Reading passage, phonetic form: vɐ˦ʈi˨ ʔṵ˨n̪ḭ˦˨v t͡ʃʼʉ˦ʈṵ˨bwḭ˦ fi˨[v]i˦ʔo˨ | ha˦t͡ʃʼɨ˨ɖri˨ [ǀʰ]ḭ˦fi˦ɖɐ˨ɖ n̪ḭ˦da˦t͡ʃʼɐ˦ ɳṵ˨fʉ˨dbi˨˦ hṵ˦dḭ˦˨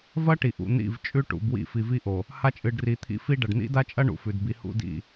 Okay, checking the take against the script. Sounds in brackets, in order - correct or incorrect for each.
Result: correct, incorrect

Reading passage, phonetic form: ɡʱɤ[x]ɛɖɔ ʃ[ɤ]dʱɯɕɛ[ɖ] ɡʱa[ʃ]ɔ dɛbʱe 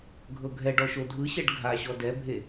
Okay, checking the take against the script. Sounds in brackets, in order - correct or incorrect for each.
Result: incorrect, incorrect, correct, incorrect

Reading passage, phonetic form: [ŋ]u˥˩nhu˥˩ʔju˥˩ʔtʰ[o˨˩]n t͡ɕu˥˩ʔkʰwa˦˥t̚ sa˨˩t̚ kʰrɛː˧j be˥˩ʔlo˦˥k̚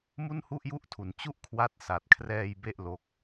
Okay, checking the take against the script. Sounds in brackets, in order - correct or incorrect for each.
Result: incorrect, incorrect

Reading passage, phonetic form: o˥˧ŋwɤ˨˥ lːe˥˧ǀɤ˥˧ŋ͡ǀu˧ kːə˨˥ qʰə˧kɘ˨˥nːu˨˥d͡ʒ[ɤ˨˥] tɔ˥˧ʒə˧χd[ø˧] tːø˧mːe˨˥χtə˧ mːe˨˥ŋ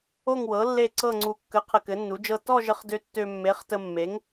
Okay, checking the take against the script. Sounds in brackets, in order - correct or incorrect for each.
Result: incorrect, correct

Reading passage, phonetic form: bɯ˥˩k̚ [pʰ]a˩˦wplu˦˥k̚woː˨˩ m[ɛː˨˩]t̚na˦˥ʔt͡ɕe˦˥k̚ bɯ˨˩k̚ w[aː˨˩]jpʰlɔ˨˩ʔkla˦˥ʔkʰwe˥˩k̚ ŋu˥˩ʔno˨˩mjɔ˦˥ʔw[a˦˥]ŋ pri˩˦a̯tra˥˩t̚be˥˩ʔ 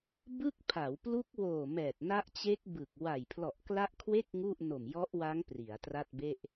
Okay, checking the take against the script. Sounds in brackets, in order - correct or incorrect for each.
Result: correct, correct, incorrect, correct

